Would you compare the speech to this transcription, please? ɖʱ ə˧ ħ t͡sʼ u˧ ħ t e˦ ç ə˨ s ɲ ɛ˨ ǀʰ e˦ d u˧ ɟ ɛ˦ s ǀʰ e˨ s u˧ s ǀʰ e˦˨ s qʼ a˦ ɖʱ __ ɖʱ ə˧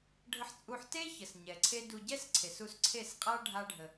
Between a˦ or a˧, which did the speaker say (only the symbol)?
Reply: a˦